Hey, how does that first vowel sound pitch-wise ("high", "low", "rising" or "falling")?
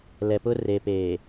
low